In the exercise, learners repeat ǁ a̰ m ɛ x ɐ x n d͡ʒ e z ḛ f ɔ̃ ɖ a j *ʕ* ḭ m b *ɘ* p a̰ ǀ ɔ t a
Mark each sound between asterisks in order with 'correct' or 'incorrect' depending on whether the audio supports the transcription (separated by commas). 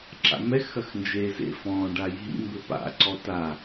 incorrect, correct